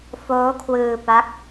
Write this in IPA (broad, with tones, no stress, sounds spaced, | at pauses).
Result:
f oː˦˥ kʰ w ɯː˧ p a˦˥ k̚